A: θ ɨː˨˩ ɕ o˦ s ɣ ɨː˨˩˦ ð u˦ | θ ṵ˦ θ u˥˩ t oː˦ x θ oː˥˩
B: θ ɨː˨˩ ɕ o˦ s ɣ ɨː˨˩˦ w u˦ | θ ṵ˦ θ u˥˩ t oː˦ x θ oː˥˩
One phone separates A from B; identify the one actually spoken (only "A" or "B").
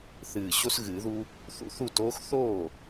A